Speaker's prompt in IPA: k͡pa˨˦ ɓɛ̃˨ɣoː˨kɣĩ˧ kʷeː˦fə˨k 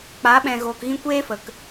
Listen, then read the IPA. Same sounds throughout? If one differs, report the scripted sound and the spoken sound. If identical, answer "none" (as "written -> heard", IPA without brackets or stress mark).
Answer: none